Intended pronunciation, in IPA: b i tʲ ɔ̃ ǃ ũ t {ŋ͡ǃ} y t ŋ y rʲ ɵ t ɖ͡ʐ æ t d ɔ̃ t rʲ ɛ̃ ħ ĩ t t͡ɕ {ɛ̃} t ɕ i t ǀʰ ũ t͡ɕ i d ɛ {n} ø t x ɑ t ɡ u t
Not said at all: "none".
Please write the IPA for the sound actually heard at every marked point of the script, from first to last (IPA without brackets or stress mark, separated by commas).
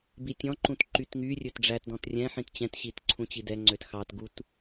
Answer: ǃ, ɛ̃, ŋ͡ǀ